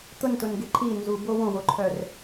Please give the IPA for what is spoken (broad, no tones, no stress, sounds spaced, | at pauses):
t̪ ʊ n t ʊ n ɡ e ǃʰ i n z u b o w õ w o ǃʰ œ r